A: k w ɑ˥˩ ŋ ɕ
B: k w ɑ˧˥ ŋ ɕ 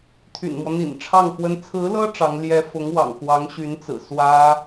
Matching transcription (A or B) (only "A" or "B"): B